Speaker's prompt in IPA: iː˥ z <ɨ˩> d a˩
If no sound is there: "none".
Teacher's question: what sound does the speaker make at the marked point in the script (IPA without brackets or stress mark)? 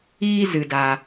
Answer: ɨ˩